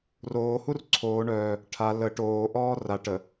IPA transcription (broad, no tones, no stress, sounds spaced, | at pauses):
r oː h u r ǀʰ oː ɳ œː | ʈʰ a l ə ʈ oː ʔ ɔː r a ʈ ə